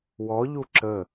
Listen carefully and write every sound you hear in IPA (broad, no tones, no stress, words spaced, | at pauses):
wɔʎu ǁə